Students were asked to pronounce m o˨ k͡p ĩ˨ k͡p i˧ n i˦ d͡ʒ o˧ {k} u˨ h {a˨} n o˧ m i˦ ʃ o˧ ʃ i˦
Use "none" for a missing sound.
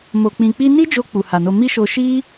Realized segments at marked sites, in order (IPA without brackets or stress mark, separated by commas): k͡p, a˨